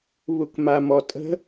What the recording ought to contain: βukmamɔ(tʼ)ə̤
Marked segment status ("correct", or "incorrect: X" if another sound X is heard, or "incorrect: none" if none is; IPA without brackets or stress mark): correct